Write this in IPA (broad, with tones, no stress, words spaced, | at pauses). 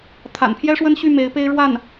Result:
t̪ʰa̰˨˩npʰjɛ˥ʂwə˥nɕy˥˩ me˧˥ɪ̯pe˥ɪ̯ɻwa˥˩n